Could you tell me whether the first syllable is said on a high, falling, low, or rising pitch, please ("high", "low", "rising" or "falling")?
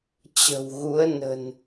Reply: low